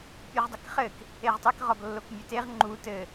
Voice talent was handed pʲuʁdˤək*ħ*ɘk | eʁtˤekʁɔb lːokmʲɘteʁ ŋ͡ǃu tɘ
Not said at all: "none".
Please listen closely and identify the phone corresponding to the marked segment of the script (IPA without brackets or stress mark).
χ